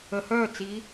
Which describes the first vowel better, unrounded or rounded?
unrounded